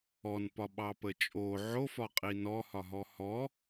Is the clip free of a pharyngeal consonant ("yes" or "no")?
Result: no